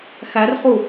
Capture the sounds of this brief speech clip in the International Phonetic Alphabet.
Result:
x æ r χ u

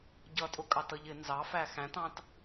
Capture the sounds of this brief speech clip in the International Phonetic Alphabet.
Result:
ɟ ʌ tʼ ʊ kʼ ɑ t ʌ ʎ ɪ n z ɑ f æ x æ̃ t ɑ̃ t

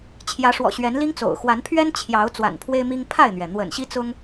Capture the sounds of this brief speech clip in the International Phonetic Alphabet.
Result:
t͡ɕʰ j ä˨˦ ʂ w ɔ̰˨˩ ɕ ɥ ɛ˨˦ n l i˦ ŋ t͡s o̰˨˩ ʊ̯ x w a˨˦ n pʰ ɥ ɛ˦ n t͡ɕʰ j ɑ˨˦ ʊ̯ t͡s w a̰˨˩ n pʰ w e˦ ɪ̯ m i˦ ŋ pʰ a˥˨ ɪ̯ n̪ ɥ ɛ˩ n̪ w ə̰˨˩ n ɕ i˦ t͡s ʊ˦ ŋ

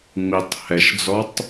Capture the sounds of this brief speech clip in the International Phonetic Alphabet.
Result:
ŋ͡m i tˤ h ɛ ʃ d͡z ɔ tˤ

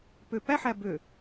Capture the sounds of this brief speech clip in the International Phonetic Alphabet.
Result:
p ø p æ ħ æ b ø

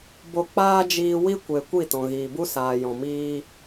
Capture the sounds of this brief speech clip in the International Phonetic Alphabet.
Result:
b o˧ k͡p aː˦ d͡ʒ iː˧ w i˦ kʷ e˨ kʷ i˦˨ t ɔ̃˨ ɣ iː˨ b u˦ s aː˨ j ɔ̃˨ m iː˦

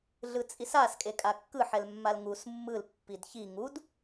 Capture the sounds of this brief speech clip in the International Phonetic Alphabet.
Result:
ɮ ɯ t͡sʼ i s a s kʼ e kʼ a kː ɯ ħ ɛ l mː a l ŋ u s mː ɯ l pː i d ç i ŋ u d

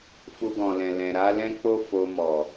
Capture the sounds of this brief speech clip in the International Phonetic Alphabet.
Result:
f u˧ ɡ ɔ̃˨ l ɛ̃˨ l ɛ̃˨ ɾ a˨˦ l ɛ̃˦ k͡p o˦ f o˧ m ɔ˨

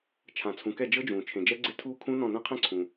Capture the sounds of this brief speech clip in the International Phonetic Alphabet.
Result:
t͡ʃʰ ã˨ t͡sʰ ũ˨ k ɛ˦˨ d͡ʒ ɤ˦˥ d͡ʒ ũː˨ t͡ʃʰ ẽ˨ d͡ʒ ɛ˦˥ ɡ͡ǀ e˦˥ tʰ uː˦˥ kʰ ũ˦˥ n ɔ̃˦˨ n ɛ̃˦˥ qʰ ẽ˦˥ ǀʰ ũ˨

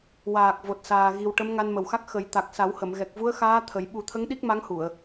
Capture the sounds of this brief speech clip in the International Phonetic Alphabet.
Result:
w aː˨˩ k̚ v o˨˩ t̚ s aː˨˩ ɣ i˨˩ w ʈ ə˧˥ m ŋ a˧ n m ə˨˩ w x a˦˥ k̚ x ə˨˩˦ j t̪ a˨˩ k̚ s a˨˩˦ w h ə˨˩˨ m ɣ ɛ˨˩ k̚ v u˧˥ ə̯ x aː˧˥ t̪ʰ ə˨˩˦ j ɓ u˨˩˦ t̪ʰ ə˧˥ ŋ ɗ i˦˥ k̚ m a˧˥ ŋ h u˨˩˨ ə̯

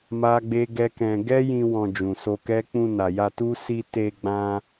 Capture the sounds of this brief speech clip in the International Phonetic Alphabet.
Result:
m a˦ ɡ͡b e˦ ɡ ɛ˦ k ɛ̃˧ ɡ ɛ˦ j ĩ˧ w ɔ̃˧ d͡ʒ ũ˨ s o˧ k ɛ˦ k͡p ũ˧ n a˨ j a˧ t u˦ s i˧ t e˧ ɡ͡b ã˧

